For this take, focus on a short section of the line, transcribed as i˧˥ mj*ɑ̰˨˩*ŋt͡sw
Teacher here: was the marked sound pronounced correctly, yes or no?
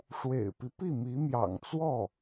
yes